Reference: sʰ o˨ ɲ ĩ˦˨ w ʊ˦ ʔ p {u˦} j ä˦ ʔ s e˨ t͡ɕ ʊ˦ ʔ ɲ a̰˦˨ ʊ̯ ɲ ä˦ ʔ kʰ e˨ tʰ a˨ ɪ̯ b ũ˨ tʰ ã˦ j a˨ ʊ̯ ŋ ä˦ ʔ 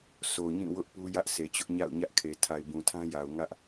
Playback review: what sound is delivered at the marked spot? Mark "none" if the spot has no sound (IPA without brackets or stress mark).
u˦